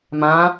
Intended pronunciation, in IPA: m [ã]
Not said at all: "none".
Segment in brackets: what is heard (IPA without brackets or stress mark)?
ã